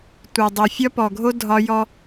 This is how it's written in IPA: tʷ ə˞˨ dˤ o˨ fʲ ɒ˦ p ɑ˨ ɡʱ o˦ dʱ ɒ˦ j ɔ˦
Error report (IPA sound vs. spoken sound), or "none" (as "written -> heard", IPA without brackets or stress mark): ɑ˨ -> ɔ˨